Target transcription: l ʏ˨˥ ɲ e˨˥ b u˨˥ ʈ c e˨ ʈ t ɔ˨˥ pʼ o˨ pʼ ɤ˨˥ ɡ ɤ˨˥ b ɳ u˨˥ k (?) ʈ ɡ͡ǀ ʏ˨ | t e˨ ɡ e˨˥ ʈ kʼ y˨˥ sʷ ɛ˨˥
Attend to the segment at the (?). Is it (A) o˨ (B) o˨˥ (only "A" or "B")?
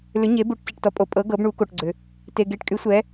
A